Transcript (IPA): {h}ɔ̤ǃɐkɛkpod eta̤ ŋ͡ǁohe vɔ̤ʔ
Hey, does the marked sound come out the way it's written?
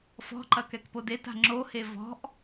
no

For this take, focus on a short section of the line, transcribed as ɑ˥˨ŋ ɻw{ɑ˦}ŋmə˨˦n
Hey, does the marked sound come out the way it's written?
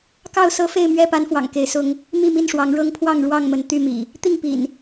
no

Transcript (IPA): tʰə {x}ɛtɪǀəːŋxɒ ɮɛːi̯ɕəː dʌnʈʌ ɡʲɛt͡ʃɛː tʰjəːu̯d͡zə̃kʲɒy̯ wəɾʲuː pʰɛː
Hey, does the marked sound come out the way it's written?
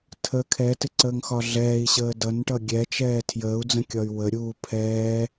no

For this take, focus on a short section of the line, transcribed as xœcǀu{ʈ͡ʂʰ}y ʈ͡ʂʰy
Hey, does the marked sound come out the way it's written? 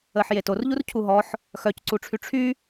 yes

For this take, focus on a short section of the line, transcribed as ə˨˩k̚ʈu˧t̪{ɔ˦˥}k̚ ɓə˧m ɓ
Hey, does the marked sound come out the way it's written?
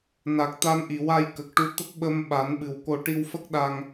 no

